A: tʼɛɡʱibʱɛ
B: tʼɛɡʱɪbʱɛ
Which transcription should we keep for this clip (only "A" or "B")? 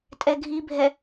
A